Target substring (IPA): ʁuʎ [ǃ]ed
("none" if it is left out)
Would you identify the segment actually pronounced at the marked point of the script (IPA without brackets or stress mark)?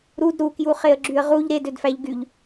ɾ